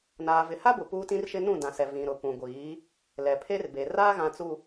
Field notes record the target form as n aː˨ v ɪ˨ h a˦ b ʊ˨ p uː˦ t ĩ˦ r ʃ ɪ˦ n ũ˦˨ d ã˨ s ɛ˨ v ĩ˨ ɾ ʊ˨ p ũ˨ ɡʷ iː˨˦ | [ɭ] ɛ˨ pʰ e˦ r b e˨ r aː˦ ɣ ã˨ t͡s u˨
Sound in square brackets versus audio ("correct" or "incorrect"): incorrect